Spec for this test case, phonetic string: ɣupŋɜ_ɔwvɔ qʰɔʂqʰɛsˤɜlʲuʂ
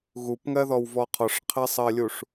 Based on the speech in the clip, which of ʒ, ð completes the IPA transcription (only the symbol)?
ð